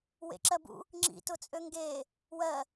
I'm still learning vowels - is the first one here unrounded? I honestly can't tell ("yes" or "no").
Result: yes